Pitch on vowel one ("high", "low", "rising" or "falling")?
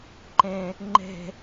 low